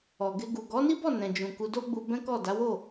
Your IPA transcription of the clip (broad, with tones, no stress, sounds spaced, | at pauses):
ɔ˨ ɡ e˧ ɡ u˨ ɡ ɔ˨˦ n i˦ b ɔ˦˨ n ɛ̃˨ d͡ʒ ũ˨ k u˧ d o˦ ɡ͡b u˧ b ɛ̃˦ k ɔ˦˨ d a˨˦ w o˦˨